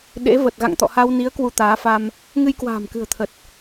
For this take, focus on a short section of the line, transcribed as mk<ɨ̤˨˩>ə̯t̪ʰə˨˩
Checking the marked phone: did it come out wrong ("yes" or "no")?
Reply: no